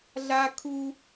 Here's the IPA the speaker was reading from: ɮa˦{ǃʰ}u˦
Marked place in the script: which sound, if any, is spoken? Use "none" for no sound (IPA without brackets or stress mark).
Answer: kʰ